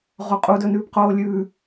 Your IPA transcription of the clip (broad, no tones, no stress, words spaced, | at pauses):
ʁoqʼu dɵnʉːpqoːlʲʉː